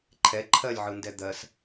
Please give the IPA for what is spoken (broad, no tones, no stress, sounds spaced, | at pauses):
ǃʰ ɛ ǃʰ ɜ lʲ ʕ ɯ n d ɛ d̪ ɜ s